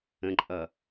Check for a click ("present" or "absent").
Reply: present